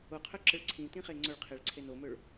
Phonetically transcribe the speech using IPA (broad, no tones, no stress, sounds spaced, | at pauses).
o qʰ œ ǁ ə ɭ ǀʰ ĩ t ĩ χ e ŋ͡ǀ ɵ ɭ qʰ e ɭ ǀʰ e n o m ɵ ɭ